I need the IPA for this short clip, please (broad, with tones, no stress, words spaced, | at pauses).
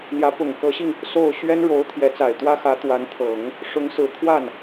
n̪jä˧˥pʊ˨˩ŋkɤ˧˥ɕi˧ŋ | so˥˩ʊ̯ ɕɥɛ˥nɻo˧˥ʊ̯ t̪ʰjɛ˧˥t͡sa˨˩ɪ̯t̪wä˥ xä˧˥ t̪wa˧˥nt̪ʰɤ˨˩˦ŋ | ʂʊ˧˥ŋsɹ̩˨˩t̪ʰwa˥˩n